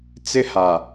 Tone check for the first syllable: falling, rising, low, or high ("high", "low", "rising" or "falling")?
high